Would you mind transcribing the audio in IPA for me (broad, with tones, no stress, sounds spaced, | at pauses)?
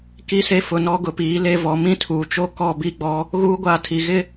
k i˦ s e˦ f ʊ˨ n ɔ˦ ɡ ʊ˨ p iː˨˦ l e˦ v ɔ˨˦ m ĩ˦ tʰ uː˨ t͡ʃ o˦ k ɔ˦˨ b i˦˨ ɡ͡b ɔ˦ | ɣ uː˦ ɡʷ aː˦ tʰ i˨ ɣ ɪ˦˨